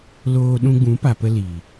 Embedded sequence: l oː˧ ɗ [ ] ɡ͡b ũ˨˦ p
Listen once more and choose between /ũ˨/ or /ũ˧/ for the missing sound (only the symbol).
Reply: ũ˧